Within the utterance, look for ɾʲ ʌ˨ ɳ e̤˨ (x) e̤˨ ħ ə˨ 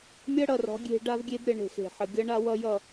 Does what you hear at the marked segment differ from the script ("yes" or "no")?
no